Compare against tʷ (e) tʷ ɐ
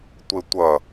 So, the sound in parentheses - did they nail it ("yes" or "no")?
yes